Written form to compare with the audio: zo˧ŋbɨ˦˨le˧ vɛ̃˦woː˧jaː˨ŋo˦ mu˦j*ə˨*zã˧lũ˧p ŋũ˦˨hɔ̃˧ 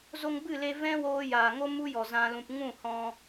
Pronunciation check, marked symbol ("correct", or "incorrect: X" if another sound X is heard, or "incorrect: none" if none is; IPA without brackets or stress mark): incorrect: ɔ˨